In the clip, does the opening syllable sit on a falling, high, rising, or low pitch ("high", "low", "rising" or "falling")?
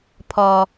low